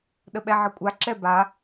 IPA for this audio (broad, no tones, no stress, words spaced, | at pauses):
ɗəɓɛʕəkʷʼa ǁɛba